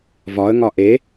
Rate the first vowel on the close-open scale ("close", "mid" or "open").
open